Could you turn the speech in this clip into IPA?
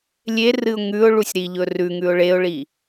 lʲ e r ɨ ʊ̯ ŋ ʉ ʊ̯ ɭ u sʲ ɾ i ʎ ɵ r ʉ ŋ ʉ ʊ̯ ɭ e ʊ̯ ɭ i

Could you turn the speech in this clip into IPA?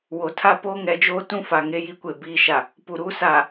w o˨ tʰ a˦ p oː˦ ŋ ɛ˨˦ d͡ʒ oː˦ t ũ˦ f a˨ ŋ e˦ j i˦ kʷ e˨ b iː˦ ʃ a˨ | p u˨ ɾ uː˦ s aː˨

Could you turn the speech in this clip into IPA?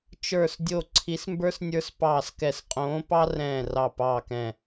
t͡ʃ ə˞˧˩ s dʲ o˧˩ ǀʰ i˨˦ s m b ə˞˦ s nʲ ə˞˦ s p ɑː˧˩ s k ɛ˧˩ s qʼ õː˨˦ p ɑ˦ r ɛ̃ː˧˩ r ɑ˧˩ p ɑː˧˩ k ɛ̃˧˩

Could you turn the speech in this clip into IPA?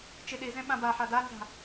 t͡ʃ i ɗ i z ẽ ɓ ã b a ħ a d a n z a̤

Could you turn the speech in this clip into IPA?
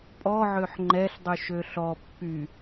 pʼ ɔ ʕ ø ħ ŋ͡ǃ ɛ ɬ dˤ y ʃ ø ɬ ɔ pː y

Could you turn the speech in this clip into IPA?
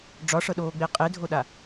ɖ͡ʐ ɒ ʂ ɤ ɗ oː ɡ͡b e qʼ e dʱ o ɗ a

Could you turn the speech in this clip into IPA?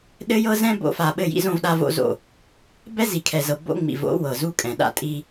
ɗ ɘ˦ j ɤ˦ z ɛ̃˦ b o̰˦˨ f a˨ ɓ ɘ˦˨ j ḭ˦ z õ˦ v ɗ a˦ v o̰˦ z o̰˦˨ | b ɛ˦ z i˨ kʰ ɛ˨ z ɤ˨ b o̰˦ ŋ͡m ḭ˨ v o̰˦ w ɤ˨ z u˦ kʼ ɛ̃˨ ɗ a̰˦ tʼ i˦

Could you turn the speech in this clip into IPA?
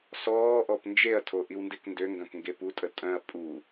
s ɔː ʔ ɔ p n d͡ʒ e ɐ̯ tʰ o ʔ i w n d e k n d ø ŋ ɡ œ̃ k ŋ ɡ e p u tʼ ə tʼ œ̃ ɐ̯ pʼ u

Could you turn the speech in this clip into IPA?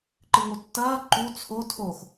ǃ ɨ ŋ o tː ɐː ǃ u t͡sʰ o tʰ o x

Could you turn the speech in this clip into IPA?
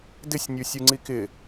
d ɪ sʲ nʲ u sʲ u ŋ͡ǀ i k ɪ

